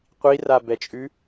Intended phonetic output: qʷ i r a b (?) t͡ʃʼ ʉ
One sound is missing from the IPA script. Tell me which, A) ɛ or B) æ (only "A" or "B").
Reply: A